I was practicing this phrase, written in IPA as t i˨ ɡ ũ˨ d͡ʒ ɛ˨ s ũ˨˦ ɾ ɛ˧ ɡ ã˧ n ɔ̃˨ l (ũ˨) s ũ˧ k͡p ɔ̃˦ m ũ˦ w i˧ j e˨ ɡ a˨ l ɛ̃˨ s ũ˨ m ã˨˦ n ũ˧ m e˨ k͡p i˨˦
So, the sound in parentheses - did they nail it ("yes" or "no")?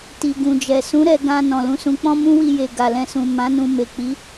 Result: no